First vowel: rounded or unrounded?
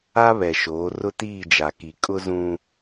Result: unrounded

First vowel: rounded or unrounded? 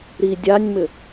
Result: unrounded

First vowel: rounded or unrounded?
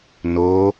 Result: rounded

